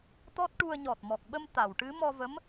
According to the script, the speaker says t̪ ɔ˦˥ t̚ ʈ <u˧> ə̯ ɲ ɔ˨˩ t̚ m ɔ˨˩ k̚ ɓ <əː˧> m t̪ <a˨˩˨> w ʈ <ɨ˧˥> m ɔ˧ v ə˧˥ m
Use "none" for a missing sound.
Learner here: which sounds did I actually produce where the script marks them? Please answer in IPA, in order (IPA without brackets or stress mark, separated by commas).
u˧, ə˧, a˨˩˨, ɨ˧˥